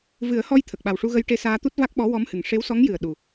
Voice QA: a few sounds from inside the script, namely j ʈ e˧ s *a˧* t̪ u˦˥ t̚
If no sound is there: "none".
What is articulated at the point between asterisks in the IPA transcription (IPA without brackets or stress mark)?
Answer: aː˧